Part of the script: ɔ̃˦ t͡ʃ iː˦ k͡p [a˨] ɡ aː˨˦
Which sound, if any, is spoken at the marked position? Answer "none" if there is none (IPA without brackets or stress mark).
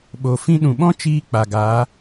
a˨